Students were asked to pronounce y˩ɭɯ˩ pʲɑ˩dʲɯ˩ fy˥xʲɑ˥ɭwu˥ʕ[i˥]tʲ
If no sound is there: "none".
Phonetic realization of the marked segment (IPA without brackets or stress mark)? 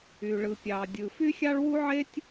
e˥